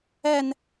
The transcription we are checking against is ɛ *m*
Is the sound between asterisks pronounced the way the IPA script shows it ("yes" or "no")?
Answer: no